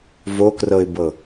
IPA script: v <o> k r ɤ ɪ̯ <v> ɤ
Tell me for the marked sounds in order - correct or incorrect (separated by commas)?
correct, incorrect